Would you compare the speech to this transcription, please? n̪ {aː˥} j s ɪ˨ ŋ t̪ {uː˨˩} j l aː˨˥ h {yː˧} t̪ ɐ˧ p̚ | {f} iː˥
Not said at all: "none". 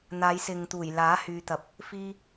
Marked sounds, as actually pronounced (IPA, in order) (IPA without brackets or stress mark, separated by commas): aː˨˧, uː˨˩, yː˧, f